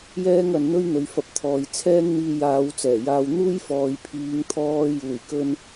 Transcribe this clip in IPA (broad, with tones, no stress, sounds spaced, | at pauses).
j ɛː˥ ŋ ɐ˨˧ n n̪ ɵ˥ ɥ n̪ ɵ˨˧ ɥ f ɐ˧ p̚ t̪ʰ ɔː˨ j t͡sʰ ɛː˥ ŋ n̪ iː˧ j aː˨˧ w t͡s ɛː˨˩ j aː˧ w n̪ uː˥ j f ɔː˨ j pʰ iː˨˧ ŋ t̪ʰ ɔː˧ j uː˨˩ j k ɵ˧ n